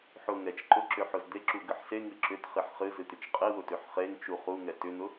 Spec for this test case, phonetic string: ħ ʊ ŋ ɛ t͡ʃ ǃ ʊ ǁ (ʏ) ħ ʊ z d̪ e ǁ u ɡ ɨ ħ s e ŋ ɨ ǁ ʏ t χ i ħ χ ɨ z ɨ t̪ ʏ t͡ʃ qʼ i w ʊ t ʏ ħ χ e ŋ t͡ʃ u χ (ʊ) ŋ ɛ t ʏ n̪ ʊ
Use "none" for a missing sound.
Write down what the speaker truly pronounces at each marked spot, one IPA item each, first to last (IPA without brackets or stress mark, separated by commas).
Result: ʏ, u